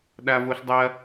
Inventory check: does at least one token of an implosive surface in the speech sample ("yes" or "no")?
yes